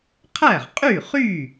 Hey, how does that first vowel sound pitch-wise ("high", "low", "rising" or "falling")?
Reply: falling